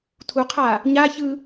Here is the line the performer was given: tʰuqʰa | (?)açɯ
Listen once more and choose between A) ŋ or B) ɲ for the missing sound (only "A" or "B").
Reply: B